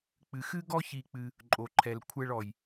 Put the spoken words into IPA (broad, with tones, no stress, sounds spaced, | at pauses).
k͡p ɨ˧ x ɨ˥ ɡ ɔ˥ ç i˧ k͡p ɨ˧ | ǃʼ o˧ ǃʰ ɛ˧ l kʷʰ ɛ˥ ɭ ɔ˧ j